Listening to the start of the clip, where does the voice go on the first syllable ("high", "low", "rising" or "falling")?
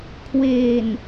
low